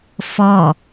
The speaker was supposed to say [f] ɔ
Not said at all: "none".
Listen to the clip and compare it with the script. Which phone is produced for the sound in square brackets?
f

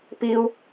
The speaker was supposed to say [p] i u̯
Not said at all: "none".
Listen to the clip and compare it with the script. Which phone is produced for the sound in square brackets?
p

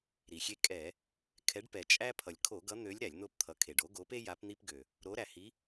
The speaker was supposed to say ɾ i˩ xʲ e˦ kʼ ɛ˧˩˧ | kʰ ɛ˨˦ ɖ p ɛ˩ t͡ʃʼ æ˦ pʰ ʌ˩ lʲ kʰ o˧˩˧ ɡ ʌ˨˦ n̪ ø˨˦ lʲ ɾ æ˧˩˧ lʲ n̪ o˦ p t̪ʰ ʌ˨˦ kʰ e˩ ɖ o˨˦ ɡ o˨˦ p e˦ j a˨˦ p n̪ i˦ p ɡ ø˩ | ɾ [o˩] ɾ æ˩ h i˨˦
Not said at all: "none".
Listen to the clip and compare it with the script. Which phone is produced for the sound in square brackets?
o˨˦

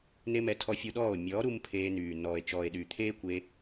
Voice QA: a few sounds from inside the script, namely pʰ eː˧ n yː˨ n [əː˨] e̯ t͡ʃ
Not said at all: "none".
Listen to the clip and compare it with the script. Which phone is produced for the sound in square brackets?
ɔː˨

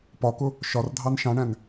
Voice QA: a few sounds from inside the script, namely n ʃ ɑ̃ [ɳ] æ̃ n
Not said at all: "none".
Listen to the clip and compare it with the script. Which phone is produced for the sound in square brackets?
ɳ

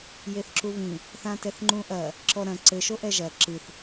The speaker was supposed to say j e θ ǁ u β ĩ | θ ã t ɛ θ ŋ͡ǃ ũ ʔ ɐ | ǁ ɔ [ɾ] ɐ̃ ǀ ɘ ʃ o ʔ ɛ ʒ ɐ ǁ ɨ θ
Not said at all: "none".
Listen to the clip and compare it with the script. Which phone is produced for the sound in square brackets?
ɾ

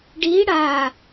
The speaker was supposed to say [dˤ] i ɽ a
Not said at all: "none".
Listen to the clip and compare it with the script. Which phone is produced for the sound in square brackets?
ɖ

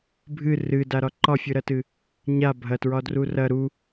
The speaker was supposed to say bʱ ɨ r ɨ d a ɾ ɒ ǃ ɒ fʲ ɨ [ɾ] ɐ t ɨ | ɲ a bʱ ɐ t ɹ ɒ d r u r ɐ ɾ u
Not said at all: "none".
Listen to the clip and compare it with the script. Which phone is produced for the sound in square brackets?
ɾ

